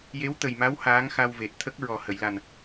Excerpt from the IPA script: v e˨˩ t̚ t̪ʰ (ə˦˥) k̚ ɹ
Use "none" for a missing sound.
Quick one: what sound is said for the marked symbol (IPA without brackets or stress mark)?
ə˦˥